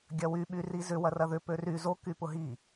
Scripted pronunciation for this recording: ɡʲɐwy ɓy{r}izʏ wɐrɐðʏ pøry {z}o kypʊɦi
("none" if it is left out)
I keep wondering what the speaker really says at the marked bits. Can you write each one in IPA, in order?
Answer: r, z

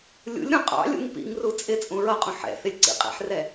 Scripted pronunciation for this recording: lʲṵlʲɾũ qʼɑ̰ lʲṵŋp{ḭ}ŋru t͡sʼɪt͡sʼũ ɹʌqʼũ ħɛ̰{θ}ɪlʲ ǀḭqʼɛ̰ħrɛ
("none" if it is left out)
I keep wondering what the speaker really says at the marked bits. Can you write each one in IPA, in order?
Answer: ḭ, θ

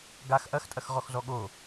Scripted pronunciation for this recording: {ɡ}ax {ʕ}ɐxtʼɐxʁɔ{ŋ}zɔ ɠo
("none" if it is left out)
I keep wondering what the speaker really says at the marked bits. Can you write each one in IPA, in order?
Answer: ɡ, ʔ, x

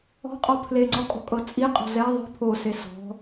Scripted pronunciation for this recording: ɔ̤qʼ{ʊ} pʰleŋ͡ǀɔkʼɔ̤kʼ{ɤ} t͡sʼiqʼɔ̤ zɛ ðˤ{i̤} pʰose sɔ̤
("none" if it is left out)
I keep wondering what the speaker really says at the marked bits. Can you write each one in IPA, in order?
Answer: ɔ, ɤ, i̤

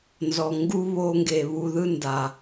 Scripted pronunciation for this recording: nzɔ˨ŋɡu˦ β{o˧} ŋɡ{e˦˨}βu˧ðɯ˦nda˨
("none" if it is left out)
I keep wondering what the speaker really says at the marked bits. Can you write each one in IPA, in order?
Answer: o˧, e˨

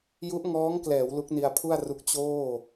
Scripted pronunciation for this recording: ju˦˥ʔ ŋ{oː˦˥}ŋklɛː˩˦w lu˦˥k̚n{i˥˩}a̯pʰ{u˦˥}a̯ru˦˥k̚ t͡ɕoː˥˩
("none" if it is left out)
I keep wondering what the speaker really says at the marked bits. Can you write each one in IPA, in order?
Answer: ɔː˦˥, i˧, u˥˩

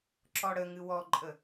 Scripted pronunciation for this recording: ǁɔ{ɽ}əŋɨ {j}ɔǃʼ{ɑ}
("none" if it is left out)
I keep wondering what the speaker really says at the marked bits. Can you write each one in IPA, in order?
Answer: ɽ, w, ə

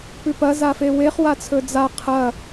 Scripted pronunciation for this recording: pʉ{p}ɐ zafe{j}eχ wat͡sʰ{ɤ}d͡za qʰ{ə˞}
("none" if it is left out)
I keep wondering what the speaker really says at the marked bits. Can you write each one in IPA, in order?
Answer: p, w, ɵ, ɐ

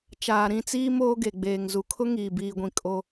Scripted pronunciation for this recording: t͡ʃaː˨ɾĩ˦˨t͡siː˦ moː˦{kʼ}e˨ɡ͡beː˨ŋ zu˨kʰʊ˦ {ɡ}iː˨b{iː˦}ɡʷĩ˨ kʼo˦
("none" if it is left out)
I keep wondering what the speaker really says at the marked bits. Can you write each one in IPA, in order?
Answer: ɡ, ŋ, iː˨

